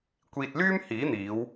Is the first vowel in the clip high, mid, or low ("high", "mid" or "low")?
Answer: high